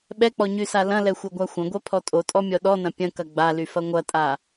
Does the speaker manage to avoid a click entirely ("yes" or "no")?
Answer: yes